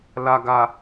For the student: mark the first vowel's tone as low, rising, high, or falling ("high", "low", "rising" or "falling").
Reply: low